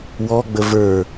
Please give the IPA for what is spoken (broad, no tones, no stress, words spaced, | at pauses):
wɔɡ͡bə və˞